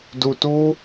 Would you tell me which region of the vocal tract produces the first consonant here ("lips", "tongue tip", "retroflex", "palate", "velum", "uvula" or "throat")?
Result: tongue tip